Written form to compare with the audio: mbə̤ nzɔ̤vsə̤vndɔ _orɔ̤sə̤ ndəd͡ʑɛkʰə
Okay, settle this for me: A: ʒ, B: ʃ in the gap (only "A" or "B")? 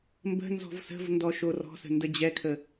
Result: B